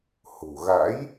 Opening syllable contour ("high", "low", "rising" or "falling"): low